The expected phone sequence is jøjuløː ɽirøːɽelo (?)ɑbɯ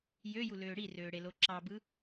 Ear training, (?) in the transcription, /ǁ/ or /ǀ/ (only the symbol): ǁ